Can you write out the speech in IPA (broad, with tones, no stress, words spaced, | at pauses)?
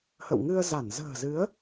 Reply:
hə̰˧˨w ŋɨ˧ə̯za˧˩n zə̤ː˨˩zɨ˨˦ə̯